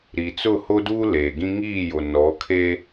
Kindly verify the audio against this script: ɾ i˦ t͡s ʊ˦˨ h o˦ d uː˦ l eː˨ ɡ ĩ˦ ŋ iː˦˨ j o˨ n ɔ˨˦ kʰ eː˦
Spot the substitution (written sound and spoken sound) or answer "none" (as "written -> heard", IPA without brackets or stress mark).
i˦ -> i˨